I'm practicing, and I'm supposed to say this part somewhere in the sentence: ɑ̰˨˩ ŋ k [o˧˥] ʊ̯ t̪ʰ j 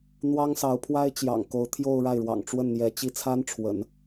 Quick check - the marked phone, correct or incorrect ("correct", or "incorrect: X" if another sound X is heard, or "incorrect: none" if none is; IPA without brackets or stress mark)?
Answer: correct